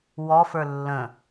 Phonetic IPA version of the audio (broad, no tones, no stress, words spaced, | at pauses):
wɔfə˞ lːə̃